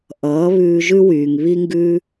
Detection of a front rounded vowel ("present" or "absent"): present